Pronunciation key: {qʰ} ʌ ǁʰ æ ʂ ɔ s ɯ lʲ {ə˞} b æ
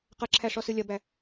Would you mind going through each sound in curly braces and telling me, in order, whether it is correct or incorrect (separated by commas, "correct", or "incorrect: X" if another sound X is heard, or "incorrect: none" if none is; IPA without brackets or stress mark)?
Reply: incorrect: q, incorrect: ɐ